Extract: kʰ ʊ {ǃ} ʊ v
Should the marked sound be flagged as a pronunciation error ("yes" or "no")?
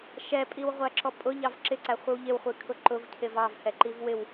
no